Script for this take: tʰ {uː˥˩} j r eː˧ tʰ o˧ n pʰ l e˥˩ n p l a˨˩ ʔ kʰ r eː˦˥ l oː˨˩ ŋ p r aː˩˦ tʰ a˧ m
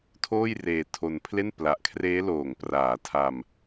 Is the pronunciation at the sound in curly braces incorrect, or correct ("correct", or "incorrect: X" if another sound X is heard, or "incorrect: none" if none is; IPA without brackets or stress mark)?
incorrect: oː˥˩